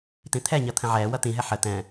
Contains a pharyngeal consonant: yes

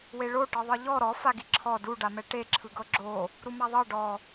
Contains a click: yes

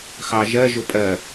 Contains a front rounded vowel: no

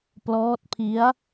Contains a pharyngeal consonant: no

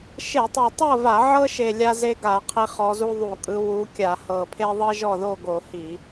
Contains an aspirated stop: yes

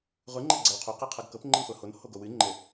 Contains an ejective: no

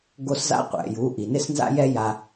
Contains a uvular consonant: yes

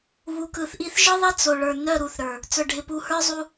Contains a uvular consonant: no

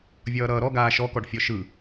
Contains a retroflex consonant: yes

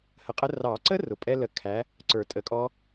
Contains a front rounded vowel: no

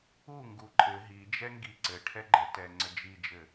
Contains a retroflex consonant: yes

